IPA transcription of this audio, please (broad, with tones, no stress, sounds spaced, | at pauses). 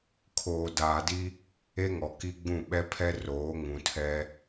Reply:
kʰ oː˨ d aː˨ d i˦ | e˦ ŋ ɔ˨ k i˦ ɡ͡b ũ˦˨ ɓ ɛ˦ pʰ ɛ˦ r oː˨˦ ŋ ũ˨ tʰ ɛ˦